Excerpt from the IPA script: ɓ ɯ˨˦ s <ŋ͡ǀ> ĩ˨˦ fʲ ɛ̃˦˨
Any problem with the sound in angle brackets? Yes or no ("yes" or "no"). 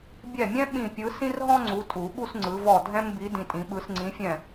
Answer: no